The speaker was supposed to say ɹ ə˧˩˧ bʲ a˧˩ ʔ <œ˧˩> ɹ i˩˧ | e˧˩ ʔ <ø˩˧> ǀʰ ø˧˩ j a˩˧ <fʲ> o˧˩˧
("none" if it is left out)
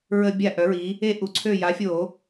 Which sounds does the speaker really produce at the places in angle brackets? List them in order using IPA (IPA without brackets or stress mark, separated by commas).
œ˩˧, u˩˧, fʲ